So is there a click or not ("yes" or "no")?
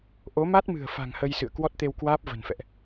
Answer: no